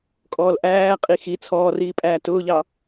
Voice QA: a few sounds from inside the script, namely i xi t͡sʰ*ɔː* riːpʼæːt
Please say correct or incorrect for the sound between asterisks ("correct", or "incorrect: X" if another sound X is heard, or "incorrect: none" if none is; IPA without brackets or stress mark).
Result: correct